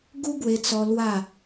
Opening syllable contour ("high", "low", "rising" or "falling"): high